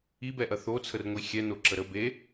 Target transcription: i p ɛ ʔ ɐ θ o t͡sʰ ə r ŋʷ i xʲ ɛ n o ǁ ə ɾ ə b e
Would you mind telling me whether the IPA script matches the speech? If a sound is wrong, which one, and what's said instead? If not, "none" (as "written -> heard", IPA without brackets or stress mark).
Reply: p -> b